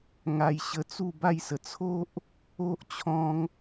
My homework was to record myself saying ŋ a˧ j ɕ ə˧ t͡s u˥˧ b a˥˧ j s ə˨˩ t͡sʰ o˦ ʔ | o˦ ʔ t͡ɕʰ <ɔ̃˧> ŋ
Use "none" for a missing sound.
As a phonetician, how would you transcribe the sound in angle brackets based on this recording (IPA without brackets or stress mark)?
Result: ɔ̃˧